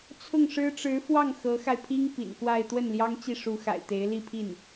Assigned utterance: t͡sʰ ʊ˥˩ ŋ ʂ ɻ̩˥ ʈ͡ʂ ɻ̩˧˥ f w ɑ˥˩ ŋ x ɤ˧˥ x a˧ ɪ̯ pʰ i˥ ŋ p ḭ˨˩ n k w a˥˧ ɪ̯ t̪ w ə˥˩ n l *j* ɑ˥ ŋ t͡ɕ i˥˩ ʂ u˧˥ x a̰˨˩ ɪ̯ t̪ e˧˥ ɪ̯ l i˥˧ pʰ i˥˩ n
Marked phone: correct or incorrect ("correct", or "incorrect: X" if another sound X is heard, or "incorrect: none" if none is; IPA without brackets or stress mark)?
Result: correct